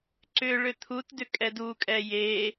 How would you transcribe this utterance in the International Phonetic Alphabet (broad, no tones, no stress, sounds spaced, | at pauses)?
ǀ ʏ ɭ ʏ t̪ʰ u t d ʏ kʼ ɛ d u kʼ ɛ j e